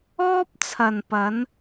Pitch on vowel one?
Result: high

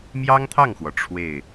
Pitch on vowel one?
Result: high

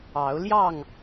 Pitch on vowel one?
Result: rising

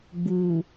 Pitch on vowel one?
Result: low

